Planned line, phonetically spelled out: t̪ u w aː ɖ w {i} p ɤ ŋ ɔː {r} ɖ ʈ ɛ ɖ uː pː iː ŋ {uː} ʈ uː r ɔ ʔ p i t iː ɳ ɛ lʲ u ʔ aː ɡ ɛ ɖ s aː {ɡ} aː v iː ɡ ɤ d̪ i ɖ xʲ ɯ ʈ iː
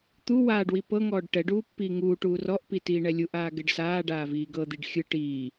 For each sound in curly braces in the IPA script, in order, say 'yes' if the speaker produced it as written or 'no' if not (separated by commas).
yes, no, yes, no